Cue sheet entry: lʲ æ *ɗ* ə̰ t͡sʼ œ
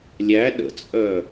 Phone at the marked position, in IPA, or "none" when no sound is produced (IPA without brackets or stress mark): ɗ